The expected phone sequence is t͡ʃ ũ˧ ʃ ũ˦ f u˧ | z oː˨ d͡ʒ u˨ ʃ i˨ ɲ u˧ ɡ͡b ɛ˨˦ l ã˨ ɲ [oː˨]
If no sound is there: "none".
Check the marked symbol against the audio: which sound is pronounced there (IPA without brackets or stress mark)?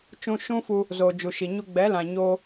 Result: oː˦